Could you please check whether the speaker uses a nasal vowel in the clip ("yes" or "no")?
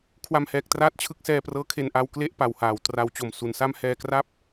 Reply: no